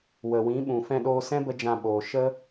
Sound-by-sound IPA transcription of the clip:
wə˨wĩ˨˦ ɓũ˨fɛ̃˧ɗoː˧ sɛ̃˦ bə˦d͡ʒã˧ ɓoː˨ ʃə˦

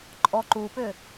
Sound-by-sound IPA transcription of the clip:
ǃʼɔ ǃupʏ

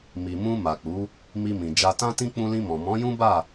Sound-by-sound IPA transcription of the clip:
mi˨mũ˧ ma˨k͡pu˨˦ | mi˧mĩ˨ d͡ʒa˨tã˧tĩ˧ k͡pũ˧lĩ˧mɔ̃˨ mɔ̃˨˦jũ˦ba˦˨

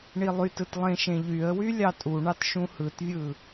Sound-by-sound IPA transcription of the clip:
ɳilˠytɯt lˠẽʃẽʎyə̯wy lʲɑtʼuɳɑt ʃũhɯtvʲɯ

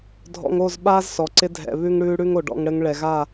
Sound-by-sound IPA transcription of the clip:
dʱɔ̰˧ŋo˦˨z ɓaː˦zsɔ˨ǀɪ˧ dʱɛ̰˨βʉ˧ŋɽʉː˧ ɽʉ˦ŋo˨ɖɔ̰˧ŋ ɽɘ˧ŋ ɭɛ˨ɣa˦˨

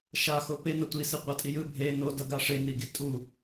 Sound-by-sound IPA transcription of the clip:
ʃaxo penʌ tʷisiqʷatʼi jɯ bʱe nodʌɡa ʂeniɡi tʼu

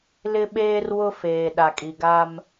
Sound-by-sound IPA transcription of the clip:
lɪ˦ɓeː˦rwʊ˦ feː˨ ɗa˨kʼi˨ɡa˦m

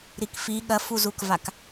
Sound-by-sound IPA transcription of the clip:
ɾikfi ɠɐfuzukvak

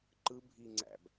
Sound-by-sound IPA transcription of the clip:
ǃɯbʱiŋ͡ǀæ̰b

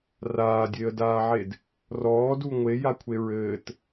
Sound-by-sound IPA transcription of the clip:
raːdʲeə̯daːʕed | rɔːdu ŋʷejakʷʰe ɹɘːt

